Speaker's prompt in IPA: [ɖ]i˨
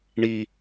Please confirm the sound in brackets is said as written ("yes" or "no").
no